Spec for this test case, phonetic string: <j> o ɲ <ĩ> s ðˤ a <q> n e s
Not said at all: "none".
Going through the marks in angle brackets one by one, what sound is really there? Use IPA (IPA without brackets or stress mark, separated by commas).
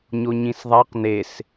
ɲ, ĩ, q